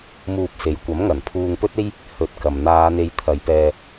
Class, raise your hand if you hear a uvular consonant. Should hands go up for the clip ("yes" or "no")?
no